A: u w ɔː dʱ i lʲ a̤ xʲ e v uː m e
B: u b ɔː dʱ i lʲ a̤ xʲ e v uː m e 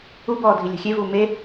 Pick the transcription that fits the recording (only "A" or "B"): B